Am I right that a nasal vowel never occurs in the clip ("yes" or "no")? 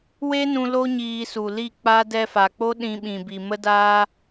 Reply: no